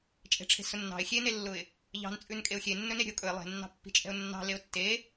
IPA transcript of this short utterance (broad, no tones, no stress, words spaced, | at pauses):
t͡ʃʼe̤ʈ͡ʂʰe̤sʊnːɑ̤ɪ̯ xʲenelːʊɪ̯ | ʎɑ̤nt͡sʼʉn kʼeʊ̯xʲenːɵne ɾʲə̤ʊ̯kʼɵɪ̯ lˠe̤nːɑ̤pːi̤t͡ʃʼɛ̤ʊ̯ nːɑ̤leʊ̯ tːe